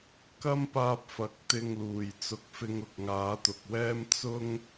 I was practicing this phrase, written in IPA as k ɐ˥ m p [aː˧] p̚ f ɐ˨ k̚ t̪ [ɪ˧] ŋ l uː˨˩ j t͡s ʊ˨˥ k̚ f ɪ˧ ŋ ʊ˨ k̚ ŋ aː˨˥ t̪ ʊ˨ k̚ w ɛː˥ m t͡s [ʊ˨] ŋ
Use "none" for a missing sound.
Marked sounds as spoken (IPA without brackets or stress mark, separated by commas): aː˧, ɪ˧, ʊ˥